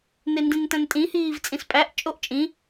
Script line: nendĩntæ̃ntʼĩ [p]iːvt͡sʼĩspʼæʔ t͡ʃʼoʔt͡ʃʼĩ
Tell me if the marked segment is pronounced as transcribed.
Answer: no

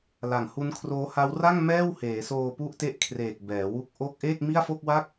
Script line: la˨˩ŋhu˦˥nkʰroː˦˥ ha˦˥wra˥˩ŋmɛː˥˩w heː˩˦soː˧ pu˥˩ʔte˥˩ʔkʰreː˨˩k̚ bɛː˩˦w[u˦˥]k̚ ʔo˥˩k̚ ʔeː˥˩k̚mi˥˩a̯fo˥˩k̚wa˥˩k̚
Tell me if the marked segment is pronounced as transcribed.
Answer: yes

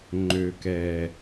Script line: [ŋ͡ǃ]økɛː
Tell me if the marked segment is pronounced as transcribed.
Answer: yes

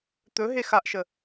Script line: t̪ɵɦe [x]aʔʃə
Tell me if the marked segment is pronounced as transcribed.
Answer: yes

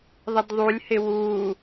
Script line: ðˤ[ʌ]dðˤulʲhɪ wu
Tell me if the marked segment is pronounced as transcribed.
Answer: no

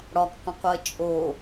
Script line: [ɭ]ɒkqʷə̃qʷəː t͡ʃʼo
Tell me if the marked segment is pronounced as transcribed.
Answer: no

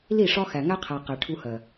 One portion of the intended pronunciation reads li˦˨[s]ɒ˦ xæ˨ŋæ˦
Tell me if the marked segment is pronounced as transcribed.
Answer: no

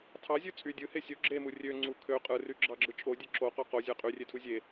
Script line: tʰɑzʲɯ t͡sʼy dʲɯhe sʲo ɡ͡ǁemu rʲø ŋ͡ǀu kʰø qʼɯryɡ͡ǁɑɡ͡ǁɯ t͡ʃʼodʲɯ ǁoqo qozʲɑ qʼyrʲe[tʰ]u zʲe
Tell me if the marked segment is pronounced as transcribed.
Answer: yes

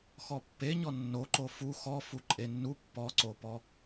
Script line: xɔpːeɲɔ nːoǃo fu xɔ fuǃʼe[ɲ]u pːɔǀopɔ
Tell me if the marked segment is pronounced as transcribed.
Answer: no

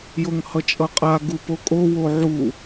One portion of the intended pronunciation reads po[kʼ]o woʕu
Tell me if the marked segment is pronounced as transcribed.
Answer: yes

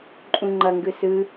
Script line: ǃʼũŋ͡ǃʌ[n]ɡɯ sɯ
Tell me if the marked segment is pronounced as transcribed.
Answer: no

